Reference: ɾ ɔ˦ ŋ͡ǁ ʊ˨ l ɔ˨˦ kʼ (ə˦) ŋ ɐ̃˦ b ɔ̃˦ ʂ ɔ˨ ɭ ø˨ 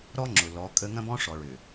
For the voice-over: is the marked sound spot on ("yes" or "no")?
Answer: yes